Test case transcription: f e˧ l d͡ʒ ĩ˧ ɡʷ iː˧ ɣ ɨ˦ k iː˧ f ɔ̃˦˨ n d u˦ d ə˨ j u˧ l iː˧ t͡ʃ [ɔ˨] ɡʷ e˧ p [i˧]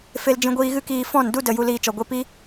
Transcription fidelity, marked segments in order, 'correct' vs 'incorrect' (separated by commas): correct, incorrect